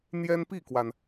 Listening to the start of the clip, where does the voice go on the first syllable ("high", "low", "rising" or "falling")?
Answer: high